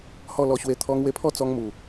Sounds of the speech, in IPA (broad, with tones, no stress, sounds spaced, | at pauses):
h ɔ˥˧ l ɔ˧ ɕ w e˧ t̪ʰ ɔ˧ ŋ w e˧ pʰ ɔ˥˧ t͡s ɔ˧ ŋ m u˨˩